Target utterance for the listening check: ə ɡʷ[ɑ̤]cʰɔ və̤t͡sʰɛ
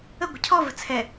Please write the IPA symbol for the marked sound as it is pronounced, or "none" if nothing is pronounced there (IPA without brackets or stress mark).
ə̤